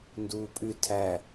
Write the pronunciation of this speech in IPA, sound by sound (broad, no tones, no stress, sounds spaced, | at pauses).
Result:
n d uː pʼ ʉ tʰ æ